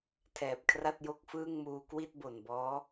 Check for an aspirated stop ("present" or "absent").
present